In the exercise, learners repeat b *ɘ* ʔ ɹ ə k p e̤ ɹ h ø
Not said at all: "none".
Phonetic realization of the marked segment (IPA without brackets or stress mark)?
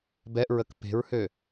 ɛ